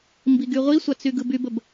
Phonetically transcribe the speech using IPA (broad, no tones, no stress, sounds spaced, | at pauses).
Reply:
m b i ɡ y ʁʷ i sʷ a t͡s y ɡ ɯ b y b ə b